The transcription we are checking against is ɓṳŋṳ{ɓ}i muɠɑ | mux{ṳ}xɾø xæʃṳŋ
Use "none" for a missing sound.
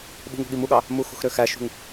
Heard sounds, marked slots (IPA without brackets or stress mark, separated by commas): ɠ, ṳ